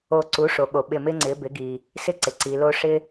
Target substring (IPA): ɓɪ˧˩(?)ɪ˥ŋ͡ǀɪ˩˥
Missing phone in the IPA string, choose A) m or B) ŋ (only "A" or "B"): A